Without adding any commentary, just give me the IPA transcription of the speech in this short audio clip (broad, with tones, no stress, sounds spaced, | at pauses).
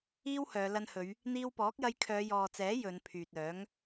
iː˥ w h œː˨˧ l ɐ˧ n h ɵ˨˧ ɥ | n̪ iː˧ w p ɔː˨˥ k̚ j ɐ˧ j kʰ œː˨˧ j ɔː˨ t͡s ɛː˨˥ j ɵ˨˧ n pʰ yː˨ t̚ œː˨˥ ŋ